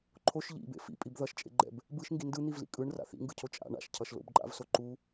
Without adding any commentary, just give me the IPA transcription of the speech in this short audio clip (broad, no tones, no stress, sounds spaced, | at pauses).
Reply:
ǃʰ o ʃ ʎ ḭ b ḛ f ḭ pʼ i b ð ʌ ʃ t͡ʃʼ ḛ ɡ͡ǃ ɛ̰ b | b ɯ ʃ ŋ ɡ i n d ɯ n̪ i v l ḭ kʼ ɯ ɳ r a̰ θ ḭ ŋ ɡ ɯ cʰ o t͡ʃʼ a̰ ɳ a̰ ʃ cʰ ʌ ʃ l o̰ b ǃʼ a̰ v s o ǃ u